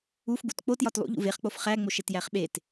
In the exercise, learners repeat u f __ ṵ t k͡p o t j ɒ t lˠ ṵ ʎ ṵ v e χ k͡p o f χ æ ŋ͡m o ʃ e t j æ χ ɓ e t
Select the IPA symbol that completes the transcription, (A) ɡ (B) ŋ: A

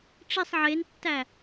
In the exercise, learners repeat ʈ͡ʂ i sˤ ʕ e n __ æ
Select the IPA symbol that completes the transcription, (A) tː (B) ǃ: A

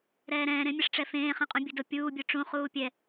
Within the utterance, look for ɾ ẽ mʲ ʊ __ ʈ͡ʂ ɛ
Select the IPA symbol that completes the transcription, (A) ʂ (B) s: A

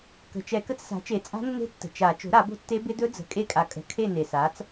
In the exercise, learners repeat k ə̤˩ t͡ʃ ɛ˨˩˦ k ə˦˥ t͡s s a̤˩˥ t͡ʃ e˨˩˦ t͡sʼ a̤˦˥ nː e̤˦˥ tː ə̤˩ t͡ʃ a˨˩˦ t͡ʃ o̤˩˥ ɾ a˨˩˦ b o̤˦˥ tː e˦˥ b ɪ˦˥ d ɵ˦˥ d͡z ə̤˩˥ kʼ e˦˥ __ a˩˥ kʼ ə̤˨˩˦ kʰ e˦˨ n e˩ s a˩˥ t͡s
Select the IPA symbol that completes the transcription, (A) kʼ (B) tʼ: A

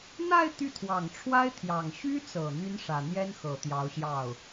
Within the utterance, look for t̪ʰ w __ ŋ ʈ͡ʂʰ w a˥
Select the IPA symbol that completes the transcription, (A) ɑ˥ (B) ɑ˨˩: B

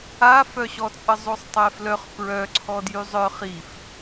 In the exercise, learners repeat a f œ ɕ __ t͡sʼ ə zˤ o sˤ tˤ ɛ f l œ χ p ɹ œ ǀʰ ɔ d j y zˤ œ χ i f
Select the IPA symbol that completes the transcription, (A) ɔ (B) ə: A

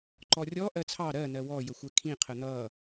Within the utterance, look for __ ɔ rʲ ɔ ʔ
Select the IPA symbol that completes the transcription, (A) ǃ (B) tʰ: A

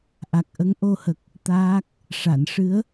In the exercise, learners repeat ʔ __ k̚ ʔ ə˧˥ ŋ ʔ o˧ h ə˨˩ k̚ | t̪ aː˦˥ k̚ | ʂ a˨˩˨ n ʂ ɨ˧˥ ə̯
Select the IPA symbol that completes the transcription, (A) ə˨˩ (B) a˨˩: B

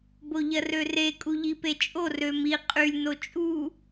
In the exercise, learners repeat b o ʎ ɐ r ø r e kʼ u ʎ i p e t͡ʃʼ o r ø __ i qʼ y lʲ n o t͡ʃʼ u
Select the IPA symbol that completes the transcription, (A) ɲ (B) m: B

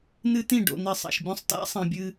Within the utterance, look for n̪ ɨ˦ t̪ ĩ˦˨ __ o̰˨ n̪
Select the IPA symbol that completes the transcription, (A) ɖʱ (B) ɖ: B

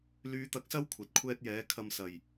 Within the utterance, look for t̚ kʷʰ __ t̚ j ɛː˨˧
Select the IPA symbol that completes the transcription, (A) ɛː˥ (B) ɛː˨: A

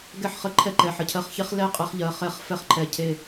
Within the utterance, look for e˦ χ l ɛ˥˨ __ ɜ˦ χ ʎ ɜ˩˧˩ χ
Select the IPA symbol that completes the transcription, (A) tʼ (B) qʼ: B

